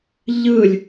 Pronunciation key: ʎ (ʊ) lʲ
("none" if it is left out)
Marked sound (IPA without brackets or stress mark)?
ɯ